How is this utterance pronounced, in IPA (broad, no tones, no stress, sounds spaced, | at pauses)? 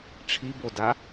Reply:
ʈ͡ʂʰ i b o d a